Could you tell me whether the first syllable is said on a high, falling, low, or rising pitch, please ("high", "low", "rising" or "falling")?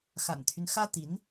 low